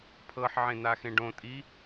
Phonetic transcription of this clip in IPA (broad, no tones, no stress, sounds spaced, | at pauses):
pʰ ɤ ħ ʕ ẽ n̪ a x ẽ ɖ õ tʼ i